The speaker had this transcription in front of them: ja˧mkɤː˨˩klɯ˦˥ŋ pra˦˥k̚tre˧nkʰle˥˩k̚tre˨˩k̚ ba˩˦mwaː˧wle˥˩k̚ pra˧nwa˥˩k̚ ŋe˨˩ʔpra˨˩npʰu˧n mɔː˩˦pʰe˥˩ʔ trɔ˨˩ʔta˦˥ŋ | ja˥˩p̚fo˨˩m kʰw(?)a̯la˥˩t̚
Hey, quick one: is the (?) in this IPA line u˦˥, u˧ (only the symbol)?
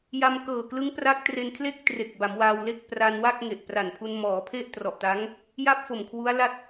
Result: u˦˥